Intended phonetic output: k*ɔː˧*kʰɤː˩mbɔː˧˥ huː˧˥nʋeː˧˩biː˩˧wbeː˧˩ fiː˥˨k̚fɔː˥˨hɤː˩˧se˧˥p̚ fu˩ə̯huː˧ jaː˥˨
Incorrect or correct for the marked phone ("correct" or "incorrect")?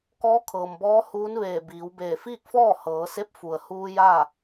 incorrect